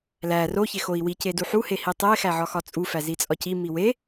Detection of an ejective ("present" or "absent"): present